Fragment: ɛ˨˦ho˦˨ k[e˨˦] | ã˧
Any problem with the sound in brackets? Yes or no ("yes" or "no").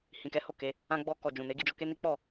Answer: no